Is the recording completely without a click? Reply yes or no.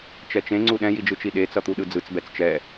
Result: no